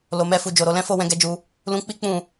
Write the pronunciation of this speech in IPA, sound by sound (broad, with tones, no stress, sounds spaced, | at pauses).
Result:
l o˨ m ɛ˧ f u˨ d͡ʒ o˨ ɾ o˧ l ɛ̃˦ f o˦˨ w ɛ̃˧ ɡ ɛ˧ d͡ʒ u˧ | l ũ˧ k͡p i˦ k͡p ũ˦˨